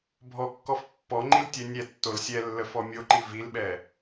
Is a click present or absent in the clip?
present